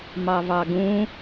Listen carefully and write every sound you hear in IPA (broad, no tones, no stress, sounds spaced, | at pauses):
m ɑ v ɑ ɡ ũ